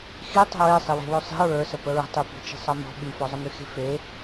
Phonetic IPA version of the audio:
x i tˤ ə̤ ɹ e sˤ i w e̤ w œ sˤ i̤ ɹ ə˞ s ə p ə ɹ ə̤ tˤ y p i̤ t͡ʃ i̤ sˤ ʌ m ɔ̤ ɓ y f ɔ zˤ ə m y x e̤ f e

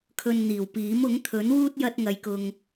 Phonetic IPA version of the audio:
kʰ ɵ˧ n n̪ iː˨˩ w p iː˨˥ m ʊ˨˥ ŋ t̪ʰ ɵ˨˥ n w uː˥ t̚ j ɐ˥ t̚ ŋ ɐ˧ j k ʊ˧ ŋ

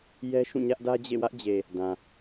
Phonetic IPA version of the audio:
j ɛ˦ ʃ ũ˦˨ ɲ ä˦ ʔ d ä˦ d͡ʑ ḛ˦˨ w ä˦ ʔ d͡ʑ e˨ | d ã˨

